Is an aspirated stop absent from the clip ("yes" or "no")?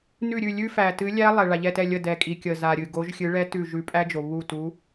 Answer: yes